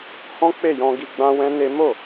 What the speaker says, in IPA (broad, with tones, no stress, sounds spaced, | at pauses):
h ɔ̃˦ k͡p e˦˨ j ɔ̃˧ ɡ i˧ ɡ͡b ã˦ w ɛ̃˦ n e˦ m o˦˨